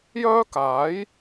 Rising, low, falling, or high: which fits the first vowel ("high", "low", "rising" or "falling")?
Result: high